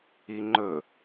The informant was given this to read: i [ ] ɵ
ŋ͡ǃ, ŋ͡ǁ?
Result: ŋ͡ǃ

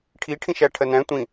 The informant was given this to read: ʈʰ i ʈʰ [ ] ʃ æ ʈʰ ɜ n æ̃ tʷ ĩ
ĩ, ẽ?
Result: ĩ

